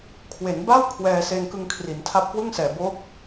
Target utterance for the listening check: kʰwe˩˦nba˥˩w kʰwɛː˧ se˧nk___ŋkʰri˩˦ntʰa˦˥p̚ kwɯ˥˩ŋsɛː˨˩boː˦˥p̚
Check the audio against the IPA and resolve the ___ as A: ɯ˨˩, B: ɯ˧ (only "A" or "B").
B